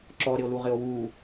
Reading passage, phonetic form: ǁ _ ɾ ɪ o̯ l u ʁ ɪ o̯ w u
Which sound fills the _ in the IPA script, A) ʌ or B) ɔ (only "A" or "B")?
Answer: B